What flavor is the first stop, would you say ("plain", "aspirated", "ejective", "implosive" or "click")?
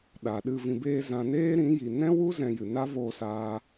implosive